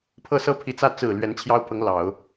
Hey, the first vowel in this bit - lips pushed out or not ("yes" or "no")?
no